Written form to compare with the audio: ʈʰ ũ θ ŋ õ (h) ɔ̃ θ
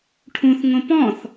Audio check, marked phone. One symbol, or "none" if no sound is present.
p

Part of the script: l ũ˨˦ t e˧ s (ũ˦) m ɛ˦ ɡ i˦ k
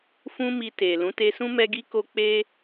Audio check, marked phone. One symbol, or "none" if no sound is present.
ũ˦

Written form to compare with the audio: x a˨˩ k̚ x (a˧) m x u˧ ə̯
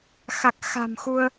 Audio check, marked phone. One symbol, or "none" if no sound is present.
a̤˨˩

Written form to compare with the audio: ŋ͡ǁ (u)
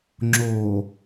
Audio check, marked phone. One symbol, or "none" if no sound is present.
o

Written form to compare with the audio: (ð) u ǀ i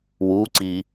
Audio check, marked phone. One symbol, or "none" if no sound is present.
w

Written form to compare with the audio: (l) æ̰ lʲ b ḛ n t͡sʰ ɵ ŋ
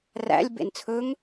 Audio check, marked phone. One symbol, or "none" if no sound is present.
r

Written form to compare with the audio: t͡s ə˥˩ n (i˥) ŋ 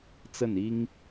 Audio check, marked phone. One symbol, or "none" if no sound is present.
i˥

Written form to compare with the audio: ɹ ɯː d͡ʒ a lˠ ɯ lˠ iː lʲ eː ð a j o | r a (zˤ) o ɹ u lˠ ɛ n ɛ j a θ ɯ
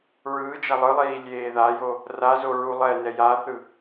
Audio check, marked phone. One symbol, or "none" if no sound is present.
z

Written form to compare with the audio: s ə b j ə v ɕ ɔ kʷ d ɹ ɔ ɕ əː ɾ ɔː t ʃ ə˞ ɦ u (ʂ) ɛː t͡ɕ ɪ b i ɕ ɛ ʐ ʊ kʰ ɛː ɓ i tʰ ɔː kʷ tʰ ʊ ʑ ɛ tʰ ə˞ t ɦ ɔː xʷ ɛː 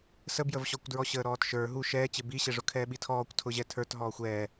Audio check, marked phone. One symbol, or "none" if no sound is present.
ʃ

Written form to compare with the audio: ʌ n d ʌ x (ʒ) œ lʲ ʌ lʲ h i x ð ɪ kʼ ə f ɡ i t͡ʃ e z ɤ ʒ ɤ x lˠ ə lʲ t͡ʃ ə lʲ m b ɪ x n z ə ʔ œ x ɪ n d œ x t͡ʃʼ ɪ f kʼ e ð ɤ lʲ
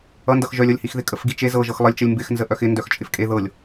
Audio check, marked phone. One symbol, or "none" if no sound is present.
ʒ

